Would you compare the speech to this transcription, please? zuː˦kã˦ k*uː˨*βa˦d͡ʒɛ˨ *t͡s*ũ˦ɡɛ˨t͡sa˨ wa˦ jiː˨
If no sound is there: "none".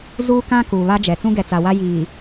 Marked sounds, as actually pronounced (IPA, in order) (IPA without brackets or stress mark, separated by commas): uː˨, t͡s